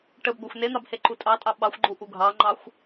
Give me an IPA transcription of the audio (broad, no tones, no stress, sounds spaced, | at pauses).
ʈ ə b ɡʷ a xʷ n e n̪ ɑ b h e ǃ u tʼ ɑ tʼ ɑ ɓ ɑ xʷ ɡ͡ǃ u ʔ u ɡʱ ɑ ŋ͡ǃ ɑ xʷ